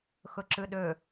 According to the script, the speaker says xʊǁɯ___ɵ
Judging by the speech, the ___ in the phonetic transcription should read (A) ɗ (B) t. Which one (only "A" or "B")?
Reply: A